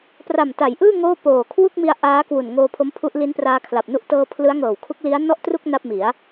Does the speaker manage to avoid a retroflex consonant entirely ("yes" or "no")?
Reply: yes